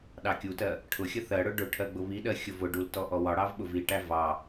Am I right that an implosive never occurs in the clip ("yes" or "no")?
no